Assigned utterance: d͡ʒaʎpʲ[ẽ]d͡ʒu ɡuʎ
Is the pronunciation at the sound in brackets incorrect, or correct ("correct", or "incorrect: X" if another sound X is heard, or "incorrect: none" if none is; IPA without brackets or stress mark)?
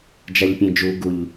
correct